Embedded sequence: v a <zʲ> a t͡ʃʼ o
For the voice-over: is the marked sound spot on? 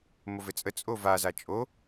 no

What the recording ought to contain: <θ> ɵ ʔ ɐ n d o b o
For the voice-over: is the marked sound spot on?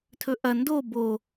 no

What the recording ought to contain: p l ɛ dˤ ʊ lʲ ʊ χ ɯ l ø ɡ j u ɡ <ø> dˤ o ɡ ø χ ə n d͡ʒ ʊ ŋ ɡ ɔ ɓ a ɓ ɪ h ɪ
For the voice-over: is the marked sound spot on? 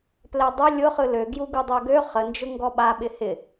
no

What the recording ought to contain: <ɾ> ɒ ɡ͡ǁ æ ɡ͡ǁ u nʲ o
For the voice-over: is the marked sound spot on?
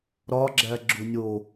yes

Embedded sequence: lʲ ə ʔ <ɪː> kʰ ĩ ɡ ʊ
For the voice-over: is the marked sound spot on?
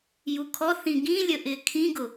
yes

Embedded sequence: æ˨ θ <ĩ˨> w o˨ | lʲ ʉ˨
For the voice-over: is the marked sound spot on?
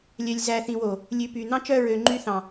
yes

